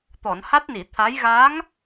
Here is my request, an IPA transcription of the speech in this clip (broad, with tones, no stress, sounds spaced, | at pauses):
t̪ ɔ˨˩˨ n h a˦˥ t̚ n i˨˩˨ t̪ʰ a˧˥ j ɣ a˧˥ ŋ